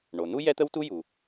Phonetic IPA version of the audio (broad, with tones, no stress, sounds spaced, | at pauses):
ɳ o˩ n u˥ j ɛ˥ t̪ ə˥ w t u˥ j u˩